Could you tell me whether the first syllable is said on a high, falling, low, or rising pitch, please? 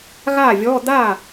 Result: falling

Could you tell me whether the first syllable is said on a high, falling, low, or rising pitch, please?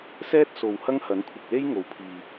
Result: high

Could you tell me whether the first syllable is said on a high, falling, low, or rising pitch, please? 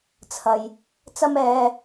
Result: low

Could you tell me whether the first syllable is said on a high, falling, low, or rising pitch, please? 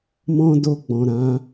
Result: high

